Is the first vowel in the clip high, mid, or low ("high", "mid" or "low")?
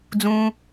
high